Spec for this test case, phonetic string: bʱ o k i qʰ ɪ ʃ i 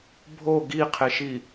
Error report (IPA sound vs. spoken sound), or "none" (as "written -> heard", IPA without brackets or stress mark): k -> ɡ